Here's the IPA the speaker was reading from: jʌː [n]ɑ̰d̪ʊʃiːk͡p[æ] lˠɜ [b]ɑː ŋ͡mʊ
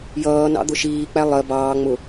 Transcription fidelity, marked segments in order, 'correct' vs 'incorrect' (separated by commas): correct, correct, correct